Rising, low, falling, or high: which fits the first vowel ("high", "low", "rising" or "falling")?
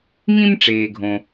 high